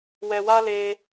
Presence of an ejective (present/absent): absent